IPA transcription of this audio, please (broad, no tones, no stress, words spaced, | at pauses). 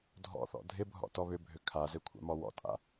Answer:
dʱɔ̰θɔ̰ dʱɪbʱɔ̰ tɔβʏbʱø kʰaze kʷʰa̰mɔwɔ̰tʼa̰